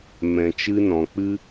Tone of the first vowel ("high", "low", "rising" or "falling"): low